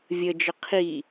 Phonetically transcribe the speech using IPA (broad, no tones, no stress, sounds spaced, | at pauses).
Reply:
vʲ ə d͡ʒ ə qʰ i